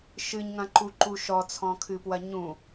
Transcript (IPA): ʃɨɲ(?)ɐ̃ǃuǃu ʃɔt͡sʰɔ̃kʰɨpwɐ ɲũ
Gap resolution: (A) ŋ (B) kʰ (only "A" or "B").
A